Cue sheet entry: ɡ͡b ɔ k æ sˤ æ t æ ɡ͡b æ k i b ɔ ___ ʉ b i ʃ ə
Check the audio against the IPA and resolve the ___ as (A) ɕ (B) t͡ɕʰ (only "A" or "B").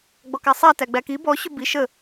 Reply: A